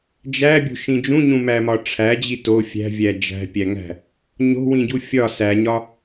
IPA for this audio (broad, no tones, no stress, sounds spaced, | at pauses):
d͡ʒ æ bʲ o̤ ʃ ĩ d͡ʒ ũ ɲ ũ m æ m ɒ ʈ͡ʂʰ æ d͡ʑ i t o fʲ æ̤ vʲ æ d͡ʒ æ̤ pʲ æ ŋ æ̤ | ɲ o̤ w ĩ ɟ u fʲ ɒ s æ ɲ ɒ